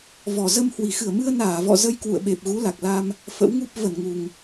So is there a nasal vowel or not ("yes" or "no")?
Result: no